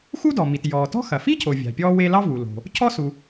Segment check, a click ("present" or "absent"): absent